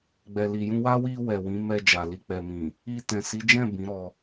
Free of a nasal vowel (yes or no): no